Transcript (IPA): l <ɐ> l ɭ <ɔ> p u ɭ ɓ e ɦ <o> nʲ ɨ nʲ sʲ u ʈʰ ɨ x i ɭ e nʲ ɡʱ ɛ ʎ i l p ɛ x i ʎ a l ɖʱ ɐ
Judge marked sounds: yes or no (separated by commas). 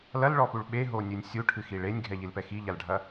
yes, yes, yes